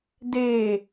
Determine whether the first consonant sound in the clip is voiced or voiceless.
voiced